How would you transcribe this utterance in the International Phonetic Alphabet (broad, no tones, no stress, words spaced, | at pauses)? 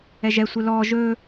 ɛʒɛ sʷɘlɔː ʒɵː